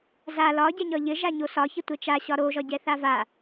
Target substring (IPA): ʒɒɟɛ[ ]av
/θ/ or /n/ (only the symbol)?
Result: θ